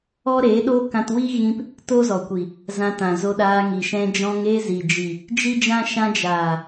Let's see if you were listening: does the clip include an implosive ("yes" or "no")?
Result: yes